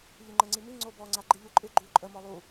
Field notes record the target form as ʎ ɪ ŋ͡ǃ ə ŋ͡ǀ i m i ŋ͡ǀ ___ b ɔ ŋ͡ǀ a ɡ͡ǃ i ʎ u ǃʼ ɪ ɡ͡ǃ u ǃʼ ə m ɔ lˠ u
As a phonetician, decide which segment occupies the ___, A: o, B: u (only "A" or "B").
A